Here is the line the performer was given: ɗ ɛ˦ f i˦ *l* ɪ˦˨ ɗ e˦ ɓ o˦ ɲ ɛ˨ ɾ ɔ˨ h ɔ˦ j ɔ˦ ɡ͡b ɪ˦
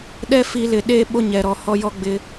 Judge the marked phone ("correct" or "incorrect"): correct